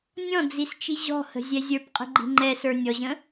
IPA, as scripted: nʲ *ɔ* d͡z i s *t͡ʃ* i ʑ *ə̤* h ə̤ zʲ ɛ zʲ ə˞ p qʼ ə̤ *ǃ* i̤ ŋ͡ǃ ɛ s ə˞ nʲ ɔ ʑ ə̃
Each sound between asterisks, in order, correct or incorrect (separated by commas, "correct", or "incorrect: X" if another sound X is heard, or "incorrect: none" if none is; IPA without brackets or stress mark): incorrect: ɔ̃, correct, incorrect: ɔ̤, incorrect: ɡ͡ǃ